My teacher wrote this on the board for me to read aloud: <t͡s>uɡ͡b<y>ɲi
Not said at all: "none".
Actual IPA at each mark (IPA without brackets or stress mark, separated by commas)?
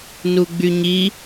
n, y